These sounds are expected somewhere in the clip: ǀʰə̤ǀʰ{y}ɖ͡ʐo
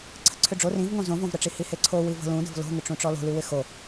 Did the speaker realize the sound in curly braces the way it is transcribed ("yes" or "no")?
no